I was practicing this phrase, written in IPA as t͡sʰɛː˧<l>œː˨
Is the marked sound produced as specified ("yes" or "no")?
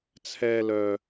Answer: yes